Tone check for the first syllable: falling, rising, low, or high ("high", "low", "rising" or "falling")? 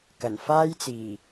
low